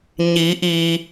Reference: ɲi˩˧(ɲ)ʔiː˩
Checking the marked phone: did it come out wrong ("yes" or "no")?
yes